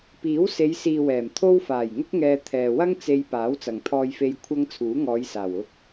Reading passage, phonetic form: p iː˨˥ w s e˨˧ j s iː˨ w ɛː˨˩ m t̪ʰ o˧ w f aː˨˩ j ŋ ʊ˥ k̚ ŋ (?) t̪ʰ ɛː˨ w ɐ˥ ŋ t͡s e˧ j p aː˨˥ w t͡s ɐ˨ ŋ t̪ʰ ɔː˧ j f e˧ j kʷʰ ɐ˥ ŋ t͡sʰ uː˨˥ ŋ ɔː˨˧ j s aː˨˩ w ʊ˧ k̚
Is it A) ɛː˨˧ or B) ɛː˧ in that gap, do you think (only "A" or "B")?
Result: B